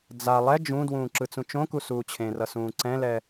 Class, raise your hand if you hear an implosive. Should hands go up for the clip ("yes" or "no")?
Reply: no